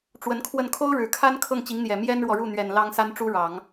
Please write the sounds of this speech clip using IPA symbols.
ʈ͡ʂ w ə˧˥ n kʰ w ə˥˩ n kʰ o˥ ʊ̯ ɻ ɻ̩˨˩ kʰ a˥ n kʰ ɤ˥˩ ŋ t͡ɕ i˧˥ ŋ n̪ j ɛ˨˩ m j ɛ˥ n ɻ w ɔ˨ ɻ u˥˩ n̪ ɥ ɛ˨˩ n l ɑ˥ ŋ s a˥ n ʈ͡ʂ u˥ ɻ ɑ˨˩˦ ŋ

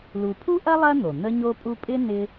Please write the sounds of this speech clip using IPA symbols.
l u˨ pʰ u˥ ʔ ɐ˥ lˠ ɐ˥ n̪ o˩ n̪ ə˦ ɲ o˦ pʼ u˦ pʼ ɪ˥ n ɪ˦

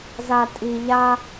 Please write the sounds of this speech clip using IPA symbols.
z a˦ tʼ i˦ ʎ a˦

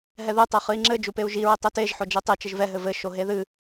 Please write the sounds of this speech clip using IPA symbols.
ɦ ɛ ð ɨ tˤ e χ ɨ i̯ ŋ͡ǁ ɘ d͡ʒ u p e u̯ ʒ i ɹ ɘ tˤ ɛ t e ʒ ħ o d͡ʒ ɛ tˤ e t͡ʃ ɘ ʒ v ɛ ɦ ɘ v ɘ ʃ o ɦ e ð ɨ

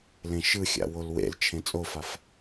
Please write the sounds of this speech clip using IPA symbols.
l ẽ ʃ ɯ xʲ a̰ w o l w ḛ l t͡ʃʰ ẽ t͡sʼ o f a f

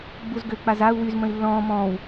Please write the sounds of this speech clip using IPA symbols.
ɡ͡b u z ɡ ø k͡p a z a u̯ w y z m ə̃ i̯ lː ɔ̃ː m ɔ̃ː w

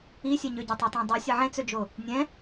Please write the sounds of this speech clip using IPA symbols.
i sʲ ɛ ɲ ø ɟ ɵ tˤ e tˤ ẽ dˤ ɨ sʲ ə ʕ ẽ t͡s ø d͡ʒ o | nʲ ɛ̃

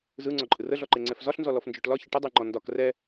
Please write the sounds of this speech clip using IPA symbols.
z ɯ ŋ͡ǀ ɔ ǃʼ ɯ r ə ɮ ɔ ǃ e ŋ͡ǀ ɛ f z ɒ ɬ n z ɔ l ɔ f n d͡ʒ ɔ ʈ l ɒ ç ə ʈ ə dˤ e ŋ͡ǃ ɔ n d ɒ k r ɛ

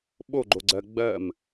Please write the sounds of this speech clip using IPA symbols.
ɓ o ɡ͡ǃ o ɡ͡ǀ ɜ ɡ͡b ɜ m

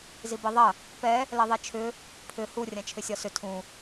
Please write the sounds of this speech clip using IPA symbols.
z i b i ðˤ ɐ | p ɛ | l ɛ ðˤ ɛ t͡ʃʰ ʏ | pʰ ʏ h u rʲ ã t͡ʃʰ ʏ sʲ ɒ s ʏ tʰ ũ

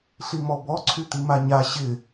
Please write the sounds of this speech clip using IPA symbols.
ɬ i m ɔ b ɔ ǀʰ y t̪ i m a ɲ a ɕ ɪ

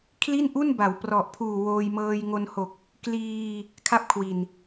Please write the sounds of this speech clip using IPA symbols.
kʰ l i˥˩ n ʔ u˥˩ n b a˩˦ w p r ɔ˨˩ ʔ pʰ uː˨˩ w oː˧ j m ɤː˧ j ŋ o˧ n h o˨˩ k̚ | k l iː˧ | kʰ a˥˩ p̚ kʰ w i˨˩ n

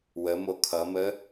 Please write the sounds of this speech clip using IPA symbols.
w ə m o kʰ ʌ m ə

